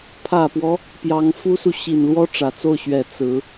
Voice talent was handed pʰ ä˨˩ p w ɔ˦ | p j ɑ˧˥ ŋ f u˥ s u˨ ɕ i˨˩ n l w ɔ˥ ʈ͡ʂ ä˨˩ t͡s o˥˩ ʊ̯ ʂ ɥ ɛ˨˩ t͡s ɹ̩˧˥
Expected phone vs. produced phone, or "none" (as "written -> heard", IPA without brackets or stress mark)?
ʂ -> ɕ